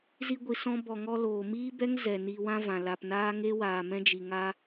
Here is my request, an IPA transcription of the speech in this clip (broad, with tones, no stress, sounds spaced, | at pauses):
z i˧ ɡʷ i˨ s ɔ̃˧ b ɔ˨ ŋ ɔ˧ l oː˨ m iː˦ b ɛ˦ ŋ z ɛ˨ n iː˧ w ã˦ v ã˨ l a˨ p n aː˦ ŋ e˦ w aː˨ m ɛ̃˦ d͡ʒ i˨ ŋ a˧